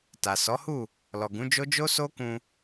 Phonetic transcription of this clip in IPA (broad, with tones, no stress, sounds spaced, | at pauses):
t a˨ s ɔ˨˦ h u˦˨ | l ɔ˨ ɡ ũ˨˦ d͡ʒ o˦ d͡ʒ o˦ s o˦ k ũ˧